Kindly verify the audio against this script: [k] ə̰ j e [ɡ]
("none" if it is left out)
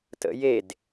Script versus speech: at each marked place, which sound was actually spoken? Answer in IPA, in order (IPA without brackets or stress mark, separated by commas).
t, d